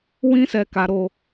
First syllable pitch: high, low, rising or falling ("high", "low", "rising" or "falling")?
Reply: high